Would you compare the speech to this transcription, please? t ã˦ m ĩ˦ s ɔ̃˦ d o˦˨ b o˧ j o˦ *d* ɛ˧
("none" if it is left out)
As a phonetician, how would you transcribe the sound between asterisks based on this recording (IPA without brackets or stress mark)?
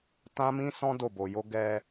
ɡ